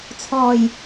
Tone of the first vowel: low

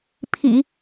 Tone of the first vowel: low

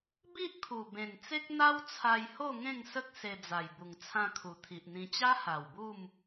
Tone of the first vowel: high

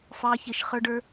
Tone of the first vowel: rising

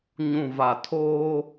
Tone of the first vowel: low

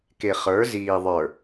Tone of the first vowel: low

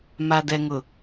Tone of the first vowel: low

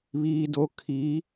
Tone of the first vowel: low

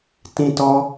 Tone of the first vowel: high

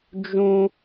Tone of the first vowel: high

